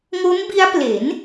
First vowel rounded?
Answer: yes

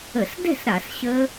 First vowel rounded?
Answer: no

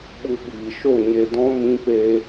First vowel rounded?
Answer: yes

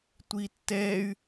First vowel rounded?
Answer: no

